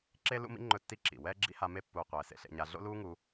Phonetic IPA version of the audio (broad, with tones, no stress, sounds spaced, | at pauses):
ǁ e˦ l ṵ˦ m ḭ˦ ŋ͡ǃ ɵ˦ tː i˦ ǁ ḭ˨ w ɛː˦ ɡ͡ǁ ḭ˦ h a˧ m e˧ pː uː˨ qʷ ɛː˨ s ḛ˧ ɬ ḛ˧ ɲ a˧ ɮ o̰˦ l uː˦ ŋ u˧